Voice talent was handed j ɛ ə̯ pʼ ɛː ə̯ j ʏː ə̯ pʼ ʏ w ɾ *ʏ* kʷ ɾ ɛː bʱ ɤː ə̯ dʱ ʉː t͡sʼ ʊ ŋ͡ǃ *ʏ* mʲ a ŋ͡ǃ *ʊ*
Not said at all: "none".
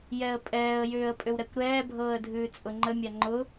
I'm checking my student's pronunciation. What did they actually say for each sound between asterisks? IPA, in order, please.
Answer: ɛ, ə, ʊ

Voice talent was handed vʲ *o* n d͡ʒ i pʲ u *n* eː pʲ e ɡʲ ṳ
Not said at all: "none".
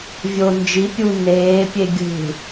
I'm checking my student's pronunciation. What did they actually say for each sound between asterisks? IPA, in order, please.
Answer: o, n

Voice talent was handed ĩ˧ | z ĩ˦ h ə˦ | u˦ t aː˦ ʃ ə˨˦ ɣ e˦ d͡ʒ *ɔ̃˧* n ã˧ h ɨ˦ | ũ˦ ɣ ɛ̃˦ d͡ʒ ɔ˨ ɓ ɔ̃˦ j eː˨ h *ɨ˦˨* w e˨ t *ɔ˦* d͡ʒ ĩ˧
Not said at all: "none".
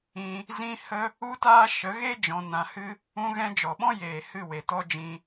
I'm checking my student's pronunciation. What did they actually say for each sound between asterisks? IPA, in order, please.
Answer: ɔ̃˧, ɨ˦˨, ɔ˦

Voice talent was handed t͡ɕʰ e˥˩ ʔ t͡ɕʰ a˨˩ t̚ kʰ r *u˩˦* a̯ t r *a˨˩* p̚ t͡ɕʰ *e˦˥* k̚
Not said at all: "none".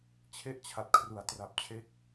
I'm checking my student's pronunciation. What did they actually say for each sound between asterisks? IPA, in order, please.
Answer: u˩˦, a˨˩, e˦˥

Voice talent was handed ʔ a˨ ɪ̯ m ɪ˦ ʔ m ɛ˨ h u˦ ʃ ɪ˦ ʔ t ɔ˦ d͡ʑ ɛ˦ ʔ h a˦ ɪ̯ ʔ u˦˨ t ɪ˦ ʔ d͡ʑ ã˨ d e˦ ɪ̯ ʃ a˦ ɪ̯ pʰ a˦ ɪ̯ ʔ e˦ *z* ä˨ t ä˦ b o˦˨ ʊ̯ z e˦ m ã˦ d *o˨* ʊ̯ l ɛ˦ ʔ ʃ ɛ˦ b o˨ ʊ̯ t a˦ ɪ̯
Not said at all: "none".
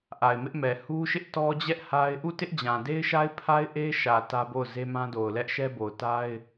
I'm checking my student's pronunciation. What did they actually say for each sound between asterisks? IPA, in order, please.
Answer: ʃ, o˨

